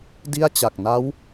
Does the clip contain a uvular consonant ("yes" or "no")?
no